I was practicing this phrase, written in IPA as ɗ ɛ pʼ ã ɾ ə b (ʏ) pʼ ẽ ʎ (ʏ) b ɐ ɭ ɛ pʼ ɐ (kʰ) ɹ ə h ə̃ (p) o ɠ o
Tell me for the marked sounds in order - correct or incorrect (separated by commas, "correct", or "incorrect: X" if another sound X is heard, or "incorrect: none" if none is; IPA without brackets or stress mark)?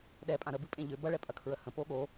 incorrect: ɨ, correct, correct, correct